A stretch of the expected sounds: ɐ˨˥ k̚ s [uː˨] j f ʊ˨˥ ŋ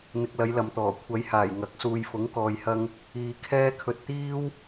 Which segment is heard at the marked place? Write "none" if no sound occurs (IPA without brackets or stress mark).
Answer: uː˨